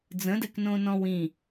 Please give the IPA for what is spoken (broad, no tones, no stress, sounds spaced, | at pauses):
d͡z ə̃ d ɛ k n õ n ɔ̃ w ĩ